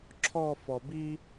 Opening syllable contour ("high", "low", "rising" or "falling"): falling